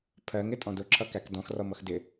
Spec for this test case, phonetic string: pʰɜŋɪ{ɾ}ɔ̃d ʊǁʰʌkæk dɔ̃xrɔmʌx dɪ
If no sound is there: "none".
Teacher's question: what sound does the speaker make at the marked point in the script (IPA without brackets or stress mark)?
tʼ